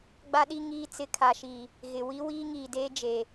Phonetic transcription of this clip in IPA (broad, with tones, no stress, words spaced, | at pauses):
ɡ͡ba˦ɗi˦ ŋiː˦ t͡sɪ˦ kʰa˨ʃi˨ | ɣɪ˨ wi˦wiː˦ŋiː˨deː˦ d͡ʒe˨